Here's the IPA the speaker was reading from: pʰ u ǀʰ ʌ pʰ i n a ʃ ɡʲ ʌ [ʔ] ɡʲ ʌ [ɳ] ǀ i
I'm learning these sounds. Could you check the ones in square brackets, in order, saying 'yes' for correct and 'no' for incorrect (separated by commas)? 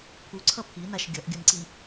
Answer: yes, no